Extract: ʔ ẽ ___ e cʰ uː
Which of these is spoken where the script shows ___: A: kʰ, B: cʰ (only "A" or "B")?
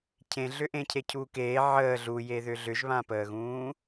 B